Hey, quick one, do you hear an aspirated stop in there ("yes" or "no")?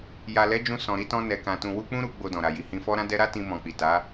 no